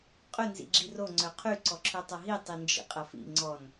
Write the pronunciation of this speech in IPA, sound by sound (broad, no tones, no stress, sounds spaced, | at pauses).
qʼ ʏ n z ḭ ɡ͡ǁ i r o ŋ͡ǀ œ qʰ y ǀ ɔ ǁʰ ø tˤ ɐ ɦ i tˤ i n d͡ʒ ḭ qʼ ɐ f ḭ ŋ͡ǀ ɔ n